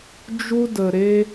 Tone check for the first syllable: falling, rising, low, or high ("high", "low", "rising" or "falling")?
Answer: high